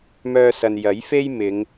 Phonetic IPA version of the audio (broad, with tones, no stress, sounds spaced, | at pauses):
m œː˧ s ɐ˨ n j ɐ˨˥ j f e˥ j m ɪ˨˧ ŋ